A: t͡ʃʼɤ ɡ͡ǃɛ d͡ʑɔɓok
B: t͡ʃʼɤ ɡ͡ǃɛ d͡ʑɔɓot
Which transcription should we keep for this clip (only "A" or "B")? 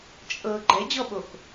A